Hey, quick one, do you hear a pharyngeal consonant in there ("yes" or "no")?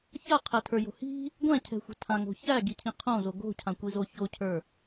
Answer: no